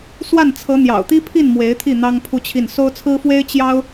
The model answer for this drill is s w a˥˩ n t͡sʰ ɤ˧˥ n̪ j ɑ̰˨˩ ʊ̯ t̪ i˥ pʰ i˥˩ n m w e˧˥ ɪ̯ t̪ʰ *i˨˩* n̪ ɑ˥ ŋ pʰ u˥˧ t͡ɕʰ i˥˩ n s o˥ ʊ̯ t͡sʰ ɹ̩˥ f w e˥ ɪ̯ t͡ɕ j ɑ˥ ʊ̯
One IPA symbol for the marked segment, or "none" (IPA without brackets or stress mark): i˥˩